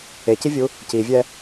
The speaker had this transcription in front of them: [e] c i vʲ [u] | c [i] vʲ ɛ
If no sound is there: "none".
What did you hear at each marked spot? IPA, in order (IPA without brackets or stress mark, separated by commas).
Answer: e, u, i